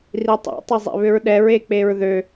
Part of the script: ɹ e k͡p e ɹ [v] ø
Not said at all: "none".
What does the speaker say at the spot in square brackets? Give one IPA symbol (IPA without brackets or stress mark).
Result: ð